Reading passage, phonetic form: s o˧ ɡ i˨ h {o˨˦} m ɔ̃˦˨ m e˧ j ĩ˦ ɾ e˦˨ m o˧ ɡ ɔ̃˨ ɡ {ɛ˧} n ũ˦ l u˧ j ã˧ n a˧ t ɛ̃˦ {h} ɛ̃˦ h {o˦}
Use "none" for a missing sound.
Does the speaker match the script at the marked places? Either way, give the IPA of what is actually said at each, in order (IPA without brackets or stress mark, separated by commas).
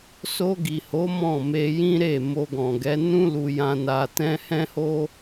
o˨˦, ɛ˨˦, h, o˦